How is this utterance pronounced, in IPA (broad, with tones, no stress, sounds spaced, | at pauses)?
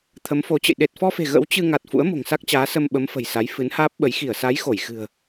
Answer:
t̪ʰ ə˨˦ m f o˨˦ t͡ɕ ə̰˧˨ j ɗ e˨˩ t̚ f ɔ˧ f e̤˨˩ ɣ ə̰˧˥ w t͡ɕ ɨ˧ ŋ a˨˩ t̚ f ṵ˧˥ ə̯ m o̤˨˩ ŋ s a˦˥ k̚ t͡ɕ aː˨˦ s ə˧ m ɓ ə˨˦ m f ə̤˨˩ j s a˨˦ j f ɨ˨˦ n h aː˦˥ p̚ ɓ ə˨˦ j x i˧˩ ə̯ s a˨˦ j x o˧˩ j x ɨ̤˨˩ ə̯